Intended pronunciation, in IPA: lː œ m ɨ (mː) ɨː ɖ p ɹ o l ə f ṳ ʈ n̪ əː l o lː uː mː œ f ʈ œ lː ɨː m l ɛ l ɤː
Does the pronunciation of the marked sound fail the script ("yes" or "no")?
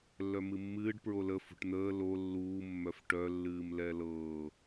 no